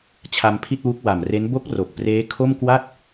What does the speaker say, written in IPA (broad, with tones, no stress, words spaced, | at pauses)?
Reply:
t͡ɕʰa˧mpʰi˥˩t̚wu˦˥k̚ wa˨˩mre˦˥n bo˦˥k̚ ro˨˩k̚preː˦˥ kʰo˥˩mkwa˥˩t̚